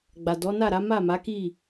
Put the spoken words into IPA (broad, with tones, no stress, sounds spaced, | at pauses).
ɡ͡b a˨ d ɔ˨˦ n a˦˨ ɾ a˨˦ m a˦˨ m a˨˦ k i˦˨